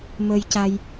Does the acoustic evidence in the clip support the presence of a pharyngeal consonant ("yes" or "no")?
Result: no